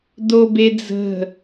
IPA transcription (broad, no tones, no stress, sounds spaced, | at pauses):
d o b e d͡z ə̤